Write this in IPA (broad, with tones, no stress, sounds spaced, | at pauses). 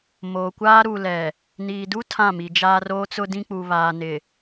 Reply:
m oː˨ kʷ aː˦ ɾ u˨ l ɛ˨ | n iː˨ d u˦ tʰ ã˦˨ m i˨ d͡ʒ aː˦ r oː˦ t͡s ʊ˦ d ĩ˦ k͡p u˨ β aː˨ n ɪ˨